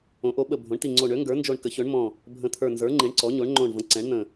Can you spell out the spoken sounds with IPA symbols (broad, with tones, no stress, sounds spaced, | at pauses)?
õ˩˥ ʔ o˩˥ ɓ ə˧˩ bʱ õ˩˥ ɳ t i˧˩ ŋ͡ǀ o˧˩ ɳ ø˩˥ ŋ ɡ ə˞˩˥ n d͡ʒ o˧˩ ɳ k ə˩˥ ç ø˩˥ ɳ m ɔ̃˧˩ | bʱ ə̃˧˩ t̪ʰ ə˞˧˩ n z ə˞˩˥ ŋ͡ǃ i˩˥ ɳ ǀ ɔ˩˥ ɲ o˩˥ ɳ ŋ͡ǃ õ˧˩ ɳ v ə̃˩˥ ǀ ɛ̃˩˥ ɳ n̪ ə̃˧˩